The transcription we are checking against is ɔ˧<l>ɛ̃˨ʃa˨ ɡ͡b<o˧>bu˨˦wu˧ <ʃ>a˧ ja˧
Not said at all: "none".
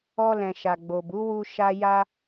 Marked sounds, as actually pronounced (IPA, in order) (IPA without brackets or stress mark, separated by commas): l, o˨, ʃ